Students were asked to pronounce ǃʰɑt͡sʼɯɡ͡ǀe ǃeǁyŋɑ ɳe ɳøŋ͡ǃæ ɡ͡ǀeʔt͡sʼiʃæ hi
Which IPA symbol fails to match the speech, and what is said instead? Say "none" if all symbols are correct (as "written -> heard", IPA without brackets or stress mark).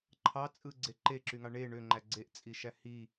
none